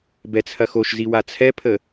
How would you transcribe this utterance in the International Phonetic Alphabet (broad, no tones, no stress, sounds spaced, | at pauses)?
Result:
b ɛ t͡sʰ ɐ x o ʃ z i w a t͡sʰ ɛ pʰ ə